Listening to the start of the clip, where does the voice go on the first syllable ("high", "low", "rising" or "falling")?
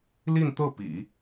falling